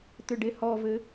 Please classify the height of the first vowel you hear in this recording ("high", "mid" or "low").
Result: high